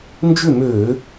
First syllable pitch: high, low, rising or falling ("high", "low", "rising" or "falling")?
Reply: falling